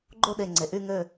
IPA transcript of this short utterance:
ɡ͡ǃo˥˧ɗe˧˩ŋ͡ǀe˩˧ ʔy˧ŋø˧˩

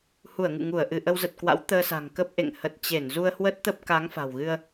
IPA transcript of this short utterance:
hu˧˩ə̯ŋɨ̰˧˨ŋu˧˩ə̯ʔɨ˧˩ ʔə˧wzə˨˩t̚kwa̰˧˥w t̪əː˧sa̤˨˩ŋ kə˦˥p̚ ʔḛ˧˨ŋ hə˨˩t̚ t͡ɕe˧˩nzu˧ə̯ hwə˦˥t̚t̪ə˦˥p̚ka˨˦ŋ fa̤˨˩wɣɨ˧ə̯

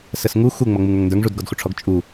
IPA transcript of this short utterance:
səsŋu xuŋ͡mʌ ŋ͡muŋə˞ŋndə˞ŋ ʐudɡɔdxuʈ͡ʂʰɔɡ t͡ʃʼu

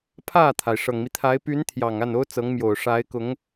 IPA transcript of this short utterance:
pʰä˥˩t̪ʰa˩ɪ̯ ʂɤ˨˩ŋmi˦ t̪ʰa˧˥ɪ̯ py˧˥nt̪ʰjɑ˨˩ŋ a˥˩no˥ʊ̯t͡sɤ˧˥ŋmjo˨˩ʊ̯ ʂa˧˥ɪ̯kʊ˧˥ŋ

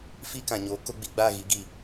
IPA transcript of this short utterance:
fi˦kã˨ɲoː˨˦ ko˦ɡ͡bi˧ɡ͡ba˦˨ɣi˨˦ ɡi˦˨

